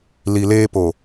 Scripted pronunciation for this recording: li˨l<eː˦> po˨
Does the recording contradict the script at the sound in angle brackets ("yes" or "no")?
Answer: no